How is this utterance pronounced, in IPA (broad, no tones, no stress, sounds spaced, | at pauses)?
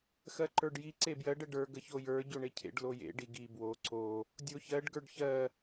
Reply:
x ɜ ǃ ə˞ ɖ j i ǀ e b j ɜ ɖ ə ɖ ə˞ ɡ ə ç o j ə˞ ɟ o ɳ e cʰ ḛ ɖ l o j ḛ ɖ i ɡ i b w o ǀ o | dʲ o ç ɜ ɖ ɡ ə˞ ɖ ç ɜ